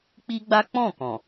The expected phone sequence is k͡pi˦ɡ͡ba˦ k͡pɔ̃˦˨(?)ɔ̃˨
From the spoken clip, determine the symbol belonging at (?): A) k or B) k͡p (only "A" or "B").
A